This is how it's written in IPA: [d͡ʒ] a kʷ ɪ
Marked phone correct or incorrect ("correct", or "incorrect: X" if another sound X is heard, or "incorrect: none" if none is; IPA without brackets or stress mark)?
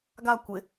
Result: incorrect: ɡ